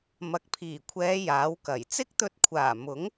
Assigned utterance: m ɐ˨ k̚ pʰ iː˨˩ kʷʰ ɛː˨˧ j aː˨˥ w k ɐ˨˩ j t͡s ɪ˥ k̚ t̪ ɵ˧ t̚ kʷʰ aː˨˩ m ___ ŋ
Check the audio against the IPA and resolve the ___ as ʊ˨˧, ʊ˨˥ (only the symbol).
ʊ˨˥